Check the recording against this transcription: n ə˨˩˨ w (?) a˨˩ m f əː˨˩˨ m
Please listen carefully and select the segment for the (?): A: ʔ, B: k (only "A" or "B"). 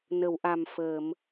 A